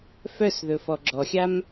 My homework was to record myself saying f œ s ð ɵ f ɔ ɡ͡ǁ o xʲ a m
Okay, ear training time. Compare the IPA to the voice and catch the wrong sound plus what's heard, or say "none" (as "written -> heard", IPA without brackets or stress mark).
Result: o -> ɔ